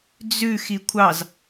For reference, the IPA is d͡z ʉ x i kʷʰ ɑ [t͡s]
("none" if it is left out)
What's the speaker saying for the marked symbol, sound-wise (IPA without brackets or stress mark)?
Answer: z